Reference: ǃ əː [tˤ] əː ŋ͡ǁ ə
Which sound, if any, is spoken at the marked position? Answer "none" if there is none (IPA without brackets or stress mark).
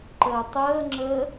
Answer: tˤ